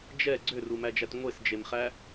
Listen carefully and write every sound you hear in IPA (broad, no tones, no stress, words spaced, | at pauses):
d͡ʒɛ ɡ͡ǀørumæd͡ʒæt ŋʷesd͡ʒemχæ